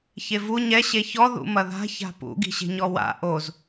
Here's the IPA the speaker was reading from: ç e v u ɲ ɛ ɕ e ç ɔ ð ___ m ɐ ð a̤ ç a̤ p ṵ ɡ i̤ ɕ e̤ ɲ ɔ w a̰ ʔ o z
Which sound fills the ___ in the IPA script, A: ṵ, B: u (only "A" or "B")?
A